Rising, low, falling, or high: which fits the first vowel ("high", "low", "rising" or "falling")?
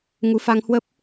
rising